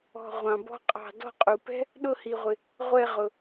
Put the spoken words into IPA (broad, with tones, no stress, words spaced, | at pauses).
ɔ̤˦˨ʁʷɑ̃˨bɔ̤˥qʼɑ̤˦˨ dɔ̤˦˨qʼu˨pɛ̤˥ | ɗʊ˦˨hi˨ʁʷɪ˨ | ʁʷɛ˦˨ʁʊ˨